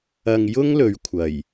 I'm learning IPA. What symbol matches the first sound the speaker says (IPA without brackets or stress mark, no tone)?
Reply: ɐ